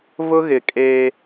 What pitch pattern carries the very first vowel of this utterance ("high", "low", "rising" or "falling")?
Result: high